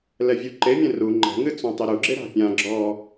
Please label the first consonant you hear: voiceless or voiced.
voiced